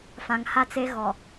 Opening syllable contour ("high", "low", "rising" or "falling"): low